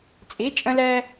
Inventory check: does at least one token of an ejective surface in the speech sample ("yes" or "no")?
yes